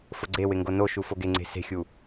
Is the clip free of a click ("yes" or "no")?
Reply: no